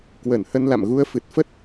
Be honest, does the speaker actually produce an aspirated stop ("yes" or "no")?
no